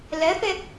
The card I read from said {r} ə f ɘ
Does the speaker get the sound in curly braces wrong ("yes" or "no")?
yes